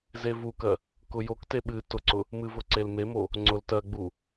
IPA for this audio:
z e v u k ɜ | k ʊ j o k t e ɓ ɨ t ʊ ǀ ʊ | m ɨ v ʊ ǀ e l m e m o | ŋ͡ǀ ʊ l t ɜ ɡ͡b u

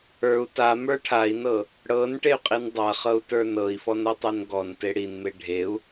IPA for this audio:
ə˞ u̯ t a m ə˞ ʈʰ a i̯ n ɤ | ɽ ɤ n ʈ e y̯ qʼ i n dˤ a χ ɤ u̯ t ə˞ n ɤ i̯ f ɔ n ɤ tˤ e n ɡ ɔ n t e ɽ i n m e ɖʱ e u̯

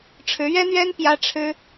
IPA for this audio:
ʈ͡ʂʰ ɻ̩˧˥ ɥ ɛ˥ n̪ ɥ ɛ˥ n p j ä˥ ʈ͡ʂʰ ɻ̩˥

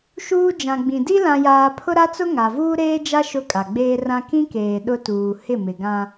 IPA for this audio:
ʃ uː˦ d͡ʒ ã˨ ɡ͡b ĩ˨ d i˦ l ã˦ j aː˦ pʰ ʊ˦ ɾ a˦ t͡s ʊ˦ ŋ a˨ v uː˦ ɾ eː˦ d͡ʒ a˦ ʃ ʊ˦ kʼ a˨ ɡ͡b eː˦ r ã˦ k ĩ˦ k eː˨ ɗ ʊ˦ t uː˨ h ɪ˦˨ m ɪ˨ ɡ ã˦

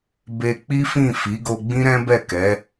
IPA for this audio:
b e˧ k͡p i˦ f ĩ˦˨ f i˨˦ ɡ o˧ ɡ͡b ĩ˦ ɾ ɛ̃˦ b ɛ˦˨ k ɛ˨˦

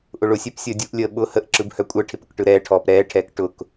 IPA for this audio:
ʔ ʊ ɭ ʊ sʲ ɛ p sʲ əː dʲ u ʔ lʲ əː ɓ ʊ h ə ʔ ǁ ɯ b h œ kʷʼ ɛ ʈʰ ɪ p ʊ k ʈ ɯ ɾ ɛː ʈʰ ɔː p ɾ ɛː ʈʰ ɛː k ʈ ʊ k

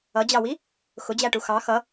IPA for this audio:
ʌ d͡ʑ ɑ w i | x ʊ d͡ʑ æ ʈ u x ɑ x ʌ

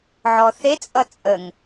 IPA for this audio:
ʕ ɔ θ e t͡sʼ ʌ t͡sʼ ə ŋ

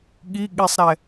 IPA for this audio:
ɠ i ɠ i sˤ ɾ ɛ

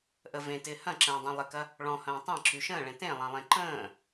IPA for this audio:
ʔ ə v ẽ t ɪː h ɐ̃ ǁ ə̃ː dˤ ẽ lˠ ɪ k ɐ | ɭ ɔ̃ h ɐ̃ː tˤ ẽ ǁ y ʃ ə̃ː ɭ ẽ t ẽ lˠ ɐ̃ lˠ ẽ ǃ ə̃ː

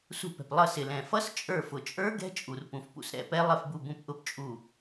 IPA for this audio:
s ṳ˧˩ p ɛ̤˩ p lˠ ʌ˧˩ s ɪ˩ l ɛ̃˩ f ʌ˧˥ s t͡ʃʼ ə˞˧˩ f ʊ˩ t͡ʃʼ ə˞˧˥ ɡ ɛ̤˧˥ t͡ʃʼ u˩ r p ũ˩ f p ṵ˧˩ s ɾ ɛ̰˩˧ p ɛ˧˥ lˠ ɪ˧˩ f b u˧˩ b ũ˧˩ p ʔ ʊ˧˩ p t͡ʃʼ u˧˩

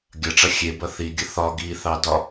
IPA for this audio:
ɡʲ ɐ ʈ͡ʂ ɐ xʲ e b ɐ θ i ɡʲ ə θ ɒ ɡ i θ ɑ d ɒ

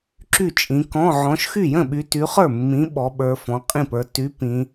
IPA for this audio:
ǁ y˥˩ t͡ʃʼ ĩ˨˦ k ɔ̃˧˥˧ ʕ ɔ̃˨˦ ʃ x y˥˩ j ə̃˥˩ ɓ y˨˦ t y˨˦ χ ə˞˥˩ mː ĩ˨˦ ɓ ɔ˨˦ ɓ ə˞˨˦ f ɔ̃˨˦ qʼ ĩ˥˩ p ə˞˨˦ t y˨˦ p ĩ˨˦

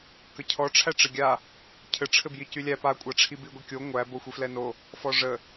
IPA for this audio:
k ə cʰ ɔ ʈ͡ʂʰ æ ʈ͡ʂ ɘ ɡʲ a | cʰ ɘ ʈ͡ʂʰ ɘ b j i c y lʲ æ p a kʷʼ a ʈ͡ʂʰ i b i ɡʷ i kʲ o ŋʷ æ b o xʷ i f l ɛ n o | f ɔ ʐ ə

